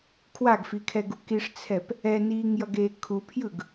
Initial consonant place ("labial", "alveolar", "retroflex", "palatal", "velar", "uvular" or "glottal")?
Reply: velar